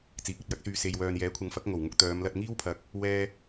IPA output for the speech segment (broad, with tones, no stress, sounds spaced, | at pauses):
t͡s iː˨˥ k̚ ɵ˨ t̚ j ɐ˥ k̚ s yː˧ s e˨ j w œː˨ n j ɛː˨˥ kʷʰ ɐ˨˥ ŋ f ɐ˨˥ k̚ ŋ o˨˩ w ŋ ʊ˧ k̚ t̪ œː˨˧ m l ɐ˧ t̚ ŋ iː˥ w pʰ ɐ˨ k̚ | w ɛː˥